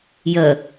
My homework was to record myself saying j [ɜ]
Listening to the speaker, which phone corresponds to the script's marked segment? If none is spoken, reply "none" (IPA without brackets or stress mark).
ɜ